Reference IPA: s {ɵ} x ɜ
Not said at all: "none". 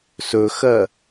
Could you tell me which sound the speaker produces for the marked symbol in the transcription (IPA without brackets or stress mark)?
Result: ɵ